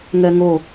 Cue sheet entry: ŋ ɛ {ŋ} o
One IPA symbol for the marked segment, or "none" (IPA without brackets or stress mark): ŋ